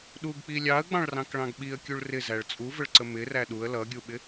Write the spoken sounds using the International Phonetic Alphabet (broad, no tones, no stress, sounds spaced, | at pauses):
ɗ u ɡ k͡p i lʲ ɑ ə̯ ɡ͡b ɑ̃ ɭ r ɑ̃ k ɭ ɑ̃ ɡ ɓ i ə̯ kʲ u ɭ r ɪ z æ ɭ t͡sʼ u v ə ɭ ǀ ə m ɪ r æ ɗ u ə̯ l ʌ ɡʲ u ɓ ɪ